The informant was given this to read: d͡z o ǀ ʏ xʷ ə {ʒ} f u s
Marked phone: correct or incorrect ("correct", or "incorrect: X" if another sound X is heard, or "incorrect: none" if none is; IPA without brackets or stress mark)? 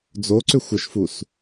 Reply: incorrect: ʃ